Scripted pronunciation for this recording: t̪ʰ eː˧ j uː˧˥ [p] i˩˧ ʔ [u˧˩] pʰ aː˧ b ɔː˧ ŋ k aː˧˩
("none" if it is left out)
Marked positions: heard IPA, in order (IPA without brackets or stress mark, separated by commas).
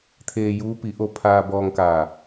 p, o˧˩